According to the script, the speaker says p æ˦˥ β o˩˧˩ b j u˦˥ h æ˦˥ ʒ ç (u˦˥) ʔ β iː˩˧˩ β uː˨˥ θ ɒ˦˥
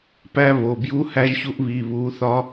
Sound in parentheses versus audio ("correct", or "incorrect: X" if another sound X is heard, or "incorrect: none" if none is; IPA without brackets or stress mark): correct